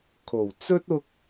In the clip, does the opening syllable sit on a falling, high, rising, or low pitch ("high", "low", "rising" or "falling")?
low